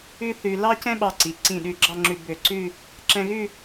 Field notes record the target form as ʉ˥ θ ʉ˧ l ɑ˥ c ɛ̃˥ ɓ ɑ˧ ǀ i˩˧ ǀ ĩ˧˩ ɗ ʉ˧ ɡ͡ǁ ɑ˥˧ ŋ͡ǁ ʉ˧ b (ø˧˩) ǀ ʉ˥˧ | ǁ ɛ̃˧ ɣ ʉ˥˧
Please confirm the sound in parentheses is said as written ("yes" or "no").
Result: yes